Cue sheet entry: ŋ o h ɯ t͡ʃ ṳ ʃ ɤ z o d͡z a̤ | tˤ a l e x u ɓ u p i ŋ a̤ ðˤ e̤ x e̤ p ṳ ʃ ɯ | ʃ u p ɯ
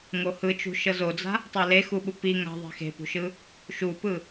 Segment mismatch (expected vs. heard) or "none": none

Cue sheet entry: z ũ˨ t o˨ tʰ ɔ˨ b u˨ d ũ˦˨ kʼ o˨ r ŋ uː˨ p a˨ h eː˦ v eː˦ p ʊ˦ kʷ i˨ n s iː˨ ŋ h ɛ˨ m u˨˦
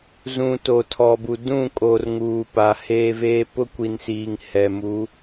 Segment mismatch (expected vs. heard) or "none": none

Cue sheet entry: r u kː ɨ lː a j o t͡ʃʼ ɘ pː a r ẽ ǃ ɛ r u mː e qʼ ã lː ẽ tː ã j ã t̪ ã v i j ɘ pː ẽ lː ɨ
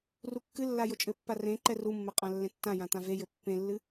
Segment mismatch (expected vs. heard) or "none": i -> e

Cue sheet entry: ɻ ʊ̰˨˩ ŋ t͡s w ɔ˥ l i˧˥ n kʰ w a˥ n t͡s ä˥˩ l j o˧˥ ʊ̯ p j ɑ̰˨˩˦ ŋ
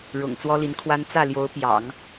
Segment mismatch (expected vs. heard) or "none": none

